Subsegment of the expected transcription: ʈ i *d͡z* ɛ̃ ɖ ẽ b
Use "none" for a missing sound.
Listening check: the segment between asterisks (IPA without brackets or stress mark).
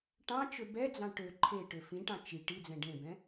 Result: d͡z